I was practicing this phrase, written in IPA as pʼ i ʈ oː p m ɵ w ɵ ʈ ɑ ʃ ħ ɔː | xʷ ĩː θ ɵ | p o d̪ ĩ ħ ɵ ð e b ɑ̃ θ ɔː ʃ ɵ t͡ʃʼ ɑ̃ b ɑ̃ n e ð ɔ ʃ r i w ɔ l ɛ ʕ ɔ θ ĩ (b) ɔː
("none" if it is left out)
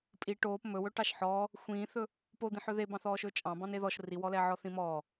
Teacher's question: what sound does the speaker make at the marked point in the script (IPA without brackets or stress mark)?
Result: m